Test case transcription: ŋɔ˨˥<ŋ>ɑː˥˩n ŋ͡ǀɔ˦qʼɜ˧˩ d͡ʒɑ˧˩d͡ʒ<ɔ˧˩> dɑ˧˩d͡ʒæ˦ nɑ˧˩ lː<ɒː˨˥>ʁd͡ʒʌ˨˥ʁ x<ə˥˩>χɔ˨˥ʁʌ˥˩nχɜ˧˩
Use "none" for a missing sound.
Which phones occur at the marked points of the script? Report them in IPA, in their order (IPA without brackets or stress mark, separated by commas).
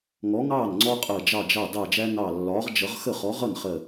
ŋ, ɑ˧˩, ɒː˨˥, ə˥˩